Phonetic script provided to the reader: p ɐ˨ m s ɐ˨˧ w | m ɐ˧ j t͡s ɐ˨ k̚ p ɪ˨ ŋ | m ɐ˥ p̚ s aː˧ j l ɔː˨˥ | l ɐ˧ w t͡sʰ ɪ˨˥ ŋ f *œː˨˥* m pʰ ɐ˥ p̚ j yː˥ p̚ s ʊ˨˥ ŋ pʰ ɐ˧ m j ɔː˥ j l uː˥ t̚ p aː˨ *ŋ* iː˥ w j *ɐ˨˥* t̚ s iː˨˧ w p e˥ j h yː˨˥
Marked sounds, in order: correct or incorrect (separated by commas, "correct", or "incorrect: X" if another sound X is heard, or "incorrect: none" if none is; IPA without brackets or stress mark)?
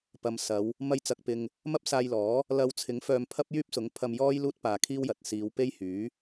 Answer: incorrect: œː˧, incorrect: kʰ, incorrect: ɐ˨